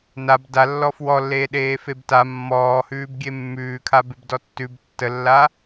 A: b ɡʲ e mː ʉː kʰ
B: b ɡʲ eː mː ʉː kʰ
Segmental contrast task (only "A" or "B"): A